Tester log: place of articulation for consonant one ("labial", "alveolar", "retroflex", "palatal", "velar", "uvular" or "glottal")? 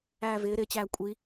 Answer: labial